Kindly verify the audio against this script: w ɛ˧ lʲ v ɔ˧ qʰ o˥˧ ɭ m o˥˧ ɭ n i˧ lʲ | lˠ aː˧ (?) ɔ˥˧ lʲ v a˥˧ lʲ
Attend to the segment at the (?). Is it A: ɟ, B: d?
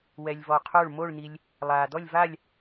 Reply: B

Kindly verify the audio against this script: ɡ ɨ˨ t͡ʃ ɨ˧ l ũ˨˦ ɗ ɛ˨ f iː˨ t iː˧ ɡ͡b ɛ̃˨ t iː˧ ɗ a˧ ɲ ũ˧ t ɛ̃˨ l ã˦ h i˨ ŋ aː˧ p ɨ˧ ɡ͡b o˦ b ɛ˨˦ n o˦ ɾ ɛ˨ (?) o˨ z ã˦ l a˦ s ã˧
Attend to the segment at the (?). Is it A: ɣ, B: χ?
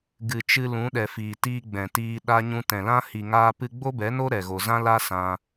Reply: A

